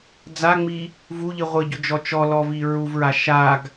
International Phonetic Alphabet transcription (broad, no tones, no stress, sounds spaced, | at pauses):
d͡z a ŋ͡m i | v u ʎ i ʁʷ ɪ ɟ ʊ d͡ʒ ɔ t͡ʃ ɔ l ɔ v i ɹ u v ɹ a ʃ a ɡ